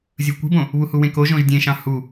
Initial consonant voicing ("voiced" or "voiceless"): voiced